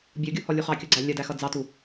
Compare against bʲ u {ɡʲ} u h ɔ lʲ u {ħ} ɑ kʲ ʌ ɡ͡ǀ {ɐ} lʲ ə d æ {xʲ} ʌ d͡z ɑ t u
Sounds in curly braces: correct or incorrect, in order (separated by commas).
correct, incorrect, incorrect, incorrect